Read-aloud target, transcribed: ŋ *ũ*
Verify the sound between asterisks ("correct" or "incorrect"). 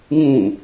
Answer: correct